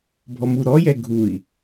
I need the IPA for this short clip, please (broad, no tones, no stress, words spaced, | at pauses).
bʱɔmuɾɔjɛ ɡʱui̯